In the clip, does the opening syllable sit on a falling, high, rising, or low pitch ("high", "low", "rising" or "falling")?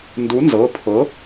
rising